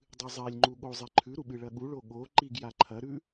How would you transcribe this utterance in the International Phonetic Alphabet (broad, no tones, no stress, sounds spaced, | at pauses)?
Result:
dˤ ɨ zˤ e lʲ ŋ͡ǃ u ɠ o zˤ e ǃʰ ʉ ɾ u ɓ ɨ ɭ ɐ ɠ u ɭ o ɠ o ǃ i ɡ j a ǃʰ ɐ ɾ ʉ